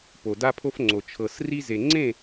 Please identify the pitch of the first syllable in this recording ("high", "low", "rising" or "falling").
low